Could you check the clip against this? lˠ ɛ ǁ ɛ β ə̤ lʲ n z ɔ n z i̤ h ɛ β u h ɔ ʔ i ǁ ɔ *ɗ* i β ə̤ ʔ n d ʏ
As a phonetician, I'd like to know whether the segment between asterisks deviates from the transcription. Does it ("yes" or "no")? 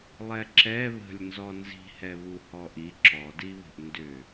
yes